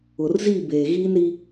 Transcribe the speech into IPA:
ʊ˨ r z i˦˨ b eː˨ ɣ iː˦ n ɾ i˦

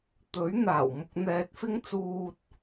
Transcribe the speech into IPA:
t̪ ɵ˨˥ ɥ n̪ aː˨˩ w m ʊ˨ k̚ n̪ ɛː˨ t̚ f ɪ˧ ŋ t͡s uː˨ t̚

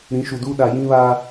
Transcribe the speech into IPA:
ɾ ĩ˨˦ ʃ u˨ d uː˦ ɗ a˨ j ĩ˦ β aː˦

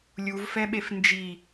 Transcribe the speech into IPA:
lʲ u v f ɛ ɓ e f n d͡ʒ i

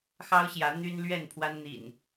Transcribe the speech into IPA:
x ɑ˦ ʊ̯ ɕ j ä˨˦ n̪ y˦ n l ɥ ɛ˥˨ n pʰ w a˦ n n̪ ḭ˨˩ n

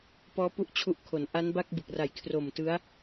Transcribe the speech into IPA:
p ɔː˦˥ p u˥˩ ʔ t͡ɕʰ u˦˥ ʔ kʰ o˩˦ n ʔ a˦˥ n b a˥˩ k̚ b ɯ˨˩ k̚ r a˨˩ j kʰ r o˨˩ m t ɯ˦˥ a̯

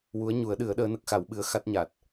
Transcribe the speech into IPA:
w u˧˥ ə̯ ɲ u˨˩˦ ə̯ ɗ ɨ˨˩˦ ə̯ ɗ əː˧˥ n ə˦˥ k̚ x a˨˩˦ w ɓ ɨ˧˥ ə̯ x a˦˥ t̚ ɲ a˨˩ t̚

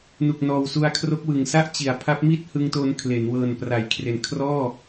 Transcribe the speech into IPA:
n u˨˩ k̚ n ɔː˨˩ w s u˧ a̯ kʰ r o˦˥ k̚ w ɯ˨˩ ŋ s a˥˩ ʔ t͡ɕ i˩˦ a̯ pʰ a˦˥ p̚ m i˥˩ t̚ h ɯ˧ ŋ t o˧ n kʰ l e˩˦ n w ɤː˨˩ n p r a˩˦ j kʰ r e˨˩ n kʰ r ɔː˥˩

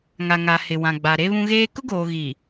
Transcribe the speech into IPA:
ŋ a˨ ŋ a˨ h ɪ˨ w ã˨ ɡ͡b a˨ ɾ e˦ β ũ˦ ɣ eː˦ k ʊ˦ ɡ oː˨ ɣ i˨

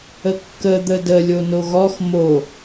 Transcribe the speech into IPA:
ə kː ə d̪ ə d ə lʲ o n o ɣ ɔ x m o

